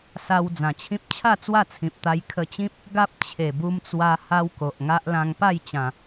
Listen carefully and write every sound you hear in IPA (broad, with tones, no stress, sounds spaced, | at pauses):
s a˧ w d͡z ã˨˩ t͡ɕʰ ĩ˦ p̚ t͡ɕʰ a˥˧ t͡s w a˥˧ t͡sʰ ĩ˨ p̚ t̪ a˧ j kʰ ə˧ t͡ɕ ĩ˦ p̚ | ɡ a˦ p̚ t͡ɕʰ e˨˩ b u˧ m t͡s w a˧ h a˦ w k o˨ ʔ ŋ a˦ ʔ l ã˧ ŋ p a˥˧ j t͡ɕ ã˨˩